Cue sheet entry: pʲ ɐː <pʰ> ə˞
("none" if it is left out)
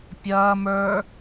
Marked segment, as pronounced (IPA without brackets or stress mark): m